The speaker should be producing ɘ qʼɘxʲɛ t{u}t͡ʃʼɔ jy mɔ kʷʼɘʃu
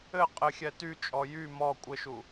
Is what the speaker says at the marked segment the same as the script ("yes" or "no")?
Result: no